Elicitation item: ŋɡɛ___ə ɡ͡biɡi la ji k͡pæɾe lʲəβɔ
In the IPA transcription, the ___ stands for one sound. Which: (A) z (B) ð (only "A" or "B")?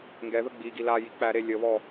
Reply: B